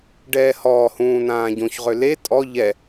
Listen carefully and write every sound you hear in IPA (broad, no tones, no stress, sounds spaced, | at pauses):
ɖ ɛː h ɔː h ũː n ãː ɟ õ ç ʁ ø l e tʼ ɔ ʎ ɛ